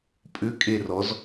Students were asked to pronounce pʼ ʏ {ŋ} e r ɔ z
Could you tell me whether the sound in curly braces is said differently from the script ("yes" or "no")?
yes